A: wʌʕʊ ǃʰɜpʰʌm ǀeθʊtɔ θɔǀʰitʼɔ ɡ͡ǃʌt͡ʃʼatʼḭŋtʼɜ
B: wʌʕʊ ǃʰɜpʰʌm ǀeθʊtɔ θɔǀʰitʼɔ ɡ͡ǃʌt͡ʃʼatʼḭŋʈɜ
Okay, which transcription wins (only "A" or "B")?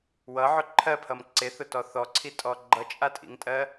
A